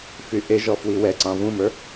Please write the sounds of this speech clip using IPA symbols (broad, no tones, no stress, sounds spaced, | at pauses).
f y ʔ e ʒ ɔ f w i w ɛ ǀ ɑ̃ v ũ m ə˞